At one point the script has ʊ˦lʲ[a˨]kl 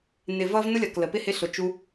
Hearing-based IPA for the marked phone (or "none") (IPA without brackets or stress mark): ʌ˨